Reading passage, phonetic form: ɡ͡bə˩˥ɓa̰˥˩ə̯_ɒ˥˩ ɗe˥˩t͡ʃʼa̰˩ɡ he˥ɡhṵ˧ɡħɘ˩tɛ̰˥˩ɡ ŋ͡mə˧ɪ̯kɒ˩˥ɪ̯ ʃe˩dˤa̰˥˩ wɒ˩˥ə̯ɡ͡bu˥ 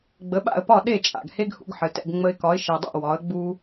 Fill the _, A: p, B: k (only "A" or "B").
A